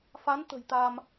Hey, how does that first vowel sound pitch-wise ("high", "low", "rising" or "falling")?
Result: rising